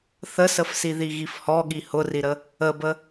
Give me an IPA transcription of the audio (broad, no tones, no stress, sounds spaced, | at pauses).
θ ə s ə f s i ð i ɣ i f h ɔ ɠ i h ʊ r i ɾ ə | ə b ə